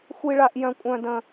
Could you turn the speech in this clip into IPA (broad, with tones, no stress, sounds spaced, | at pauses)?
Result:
xʷ i˥ ɭ a˥ ʔ j œ̃˥ kʷʼ œ̃˥ d ə̃˥